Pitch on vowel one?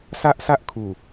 high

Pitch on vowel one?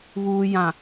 low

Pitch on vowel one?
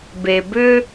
low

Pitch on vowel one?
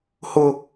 high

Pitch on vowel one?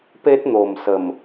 high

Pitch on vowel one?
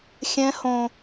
high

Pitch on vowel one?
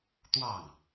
falling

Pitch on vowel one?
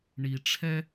low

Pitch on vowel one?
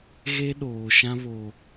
high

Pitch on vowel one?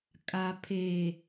low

